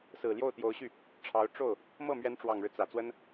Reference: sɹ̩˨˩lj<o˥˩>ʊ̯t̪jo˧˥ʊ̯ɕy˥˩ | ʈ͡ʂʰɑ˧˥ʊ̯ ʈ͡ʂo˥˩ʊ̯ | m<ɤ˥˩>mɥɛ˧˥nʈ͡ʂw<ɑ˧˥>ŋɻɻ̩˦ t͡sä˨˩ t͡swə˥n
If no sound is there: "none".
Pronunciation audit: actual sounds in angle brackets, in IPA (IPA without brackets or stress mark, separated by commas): o˥˩, ɤ˥˩, ɑ˨˩